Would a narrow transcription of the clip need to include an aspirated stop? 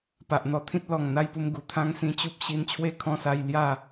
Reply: yes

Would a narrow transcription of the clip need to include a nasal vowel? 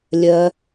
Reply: no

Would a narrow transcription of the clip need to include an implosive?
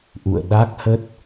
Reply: yes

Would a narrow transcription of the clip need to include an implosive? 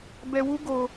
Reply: no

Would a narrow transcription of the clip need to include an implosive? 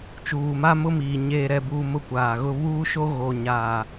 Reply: no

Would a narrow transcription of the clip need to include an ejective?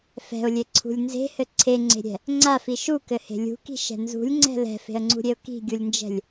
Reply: no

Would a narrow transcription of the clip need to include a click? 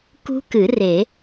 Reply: no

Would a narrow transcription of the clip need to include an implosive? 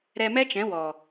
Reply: no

